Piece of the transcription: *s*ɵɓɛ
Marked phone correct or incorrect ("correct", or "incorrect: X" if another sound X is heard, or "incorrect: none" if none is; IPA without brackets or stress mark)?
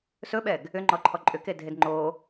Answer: correct